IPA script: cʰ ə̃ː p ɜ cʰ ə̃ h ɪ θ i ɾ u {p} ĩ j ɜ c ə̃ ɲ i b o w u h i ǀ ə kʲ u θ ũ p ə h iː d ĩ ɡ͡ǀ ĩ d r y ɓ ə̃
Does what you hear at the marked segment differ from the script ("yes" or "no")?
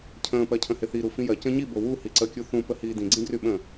yes